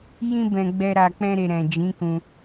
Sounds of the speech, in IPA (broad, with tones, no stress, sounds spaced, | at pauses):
j ĩ˧ b ɛ̃˨ ɡ͡b ɛ˧ ɾ a˨ k͡p ɛ̃˧ ɾ e˨ ɾ ɛ̃˨ d͡ʒ ĩ˨˦ k ũ˧